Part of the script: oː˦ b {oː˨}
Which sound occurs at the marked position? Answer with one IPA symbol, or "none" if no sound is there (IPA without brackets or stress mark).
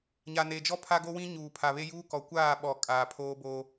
oː˦